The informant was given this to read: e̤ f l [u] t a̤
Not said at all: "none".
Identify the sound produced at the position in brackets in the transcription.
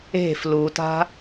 u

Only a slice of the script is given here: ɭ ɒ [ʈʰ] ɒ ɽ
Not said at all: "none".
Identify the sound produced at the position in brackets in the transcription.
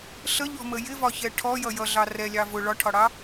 ʈʰ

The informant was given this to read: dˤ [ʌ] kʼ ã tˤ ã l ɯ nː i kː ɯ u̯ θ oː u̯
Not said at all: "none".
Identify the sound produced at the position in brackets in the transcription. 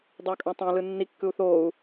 ʌ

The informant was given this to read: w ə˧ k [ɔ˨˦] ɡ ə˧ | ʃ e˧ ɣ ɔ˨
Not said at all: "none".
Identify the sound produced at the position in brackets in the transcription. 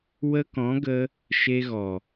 ɔ̃˨˦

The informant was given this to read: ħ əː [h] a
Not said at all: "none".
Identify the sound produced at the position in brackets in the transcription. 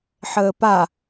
p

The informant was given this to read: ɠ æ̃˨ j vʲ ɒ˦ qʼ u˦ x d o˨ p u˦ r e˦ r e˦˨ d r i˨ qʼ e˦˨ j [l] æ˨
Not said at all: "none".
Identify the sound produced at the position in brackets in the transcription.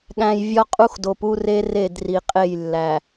lː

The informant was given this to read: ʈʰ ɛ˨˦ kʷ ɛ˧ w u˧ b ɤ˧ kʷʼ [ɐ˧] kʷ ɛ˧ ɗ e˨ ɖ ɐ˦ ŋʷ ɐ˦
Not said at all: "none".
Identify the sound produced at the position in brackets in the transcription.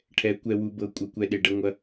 ɐ˧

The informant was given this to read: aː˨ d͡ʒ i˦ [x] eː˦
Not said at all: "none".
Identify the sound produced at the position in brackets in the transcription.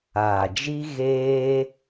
ɣ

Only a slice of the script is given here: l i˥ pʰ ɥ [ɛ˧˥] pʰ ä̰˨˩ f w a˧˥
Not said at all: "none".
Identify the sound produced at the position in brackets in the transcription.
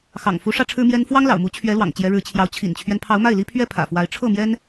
ɛ˥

